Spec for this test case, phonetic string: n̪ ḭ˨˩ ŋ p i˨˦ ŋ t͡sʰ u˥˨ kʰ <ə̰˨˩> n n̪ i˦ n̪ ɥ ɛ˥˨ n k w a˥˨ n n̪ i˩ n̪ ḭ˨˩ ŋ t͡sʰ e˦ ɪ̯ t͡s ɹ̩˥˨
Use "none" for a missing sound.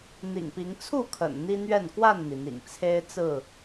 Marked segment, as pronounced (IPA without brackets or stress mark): ə̰˨˩